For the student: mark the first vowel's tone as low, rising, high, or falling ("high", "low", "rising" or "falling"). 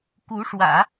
rising